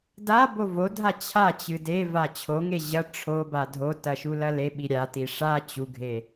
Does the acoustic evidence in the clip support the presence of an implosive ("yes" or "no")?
yes